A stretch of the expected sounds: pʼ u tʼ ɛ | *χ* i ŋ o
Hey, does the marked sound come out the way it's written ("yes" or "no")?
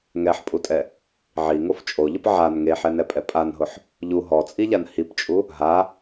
no